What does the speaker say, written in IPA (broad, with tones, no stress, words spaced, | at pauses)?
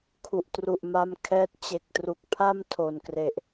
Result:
kʰu˨˩ʔtru˨˩ʔma˧mkʰɛː˦˥t̚ t͡ɕe˨˩k̚tru˨˩k̚pʰa˥˩m tʰo˨˩nkre˨˩ʔ